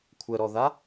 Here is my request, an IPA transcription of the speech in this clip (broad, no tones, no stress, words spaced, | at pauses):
kʷʰəɾɔða